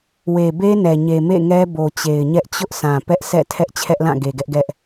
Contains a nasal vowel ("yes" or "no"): yes